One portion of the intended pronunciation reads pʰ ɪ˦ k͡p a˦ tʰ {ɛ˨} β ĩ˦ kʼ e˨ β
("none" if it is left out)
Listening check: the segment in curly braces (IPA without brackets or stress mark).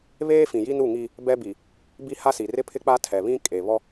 ɛ˨